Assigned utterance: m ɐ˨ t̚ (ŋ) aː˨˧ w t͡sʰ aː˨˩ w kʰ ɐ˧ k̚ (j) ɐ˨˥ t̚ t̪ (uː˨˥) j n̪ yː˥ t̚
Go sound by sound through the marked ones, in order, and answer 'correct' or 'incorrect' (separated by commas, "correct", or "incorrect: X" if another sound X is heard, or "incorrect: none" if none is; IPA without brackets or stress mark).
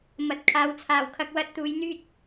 incorrect: kʰ, incorrect: w, correct